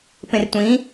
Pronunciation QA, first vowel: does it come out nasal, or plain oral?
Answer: nasal